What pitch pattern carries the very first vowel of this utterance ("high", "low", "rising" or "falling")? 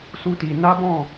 high